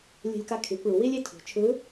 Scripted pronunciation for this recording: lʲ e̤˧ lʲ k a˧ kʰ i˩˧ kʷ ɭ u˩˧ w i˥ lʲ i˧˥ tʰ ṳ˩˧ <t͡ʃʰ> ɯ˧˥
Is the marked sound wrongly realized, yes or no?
no